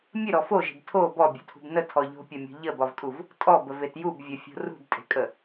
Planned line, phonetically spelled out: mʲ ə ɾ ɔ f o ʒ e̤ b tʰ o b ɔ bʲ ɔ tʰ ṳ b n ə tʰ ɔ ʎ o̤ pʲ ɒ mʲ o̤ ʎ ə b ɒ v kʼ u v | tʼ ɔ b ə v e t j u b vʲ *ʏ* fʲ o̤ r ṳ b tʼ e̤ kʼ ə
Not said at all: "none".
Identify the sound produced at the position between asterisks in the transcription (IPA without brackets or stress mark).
ə